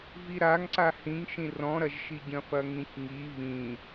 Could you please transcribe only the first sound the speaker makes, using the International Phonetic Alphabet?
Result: v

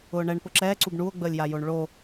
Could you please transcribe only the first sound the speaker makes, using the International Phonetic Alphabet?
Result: ʊː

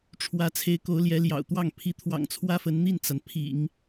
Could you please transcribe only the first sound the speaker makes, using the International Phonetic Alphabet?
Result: ʈ͡ʂʰ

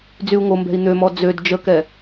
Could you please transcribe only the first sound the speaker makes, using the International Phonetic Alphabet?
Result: d͡z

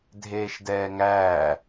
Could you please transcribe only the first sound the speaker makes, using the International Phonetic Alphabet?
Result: dʱ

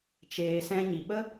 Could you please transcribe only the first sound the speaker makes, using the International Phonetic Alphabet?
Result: t͡ʃ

